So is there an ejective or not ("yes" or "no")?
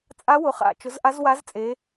yes